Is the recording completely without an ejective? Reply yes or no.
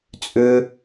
no